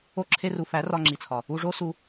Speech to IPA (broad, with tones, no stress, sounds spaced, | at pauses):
o˧ ǁʰ e˧ r u˨ f æ˨˦ r ɒ˧ ŋ͡ǁ i˨ t͡sʰ ɒ˨ | u˧ ʐ o˦ s u˧